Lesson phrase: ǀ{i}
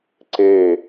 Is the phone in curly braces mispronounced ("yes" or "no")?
yes